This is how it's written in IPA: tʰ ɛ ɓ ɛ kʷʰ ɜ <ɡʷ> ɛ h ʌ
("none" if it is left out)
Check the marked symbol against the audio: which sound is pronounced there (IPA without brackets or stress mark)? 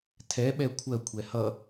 kʷʰ